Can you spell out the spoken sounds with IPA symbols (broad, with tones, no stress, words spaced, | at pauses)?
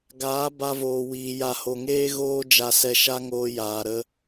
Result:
ɡaː˨˦ ba˧voː˨wiː˨ ja˨ho˨ŋeː˦ ɣoː˦d͡ʒa˧sɛ˧ ʃa˦ŋoː˧ jaː˨ɾə˧